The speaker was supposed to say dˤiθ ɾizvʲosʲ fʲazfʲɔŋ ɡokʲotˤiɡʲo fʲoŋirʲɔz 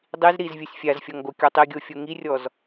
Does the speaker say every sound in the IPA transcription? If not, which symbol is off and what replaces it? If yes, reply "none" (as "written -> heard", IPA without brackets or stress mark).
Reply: θ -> z